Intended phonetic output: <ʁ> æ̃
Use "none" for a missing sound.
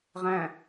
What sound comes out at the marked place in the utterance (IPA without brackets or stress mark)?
ʁ